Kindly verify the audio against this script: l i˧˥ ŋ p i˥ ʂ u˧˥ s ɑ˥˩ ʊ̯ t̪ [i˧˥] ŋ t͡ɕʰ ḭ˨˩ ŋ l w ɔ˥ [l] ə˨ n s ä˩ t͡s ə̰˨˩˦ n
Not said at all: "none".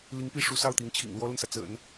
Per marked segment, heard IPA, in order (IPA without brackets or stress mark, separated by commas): i˧˥, l